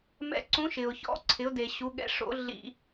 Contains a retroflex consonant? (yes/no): yes